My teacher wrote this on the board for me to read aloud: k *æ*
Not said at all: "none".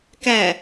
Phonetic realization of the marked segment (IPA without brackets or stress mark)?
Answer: æ